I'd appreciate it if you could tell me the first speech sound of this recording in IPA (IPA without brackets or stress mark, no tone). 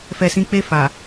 f